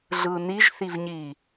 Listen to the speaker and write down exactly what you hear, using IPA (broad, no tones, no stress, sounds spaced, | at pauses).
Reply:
ɮ ɯ n i ʒ θ i v ɲ i